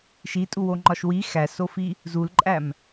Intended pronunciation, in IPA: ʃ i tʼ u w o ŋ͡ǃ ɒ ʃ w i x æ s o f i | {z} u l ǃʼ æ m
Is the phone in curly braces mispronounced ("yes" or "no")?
no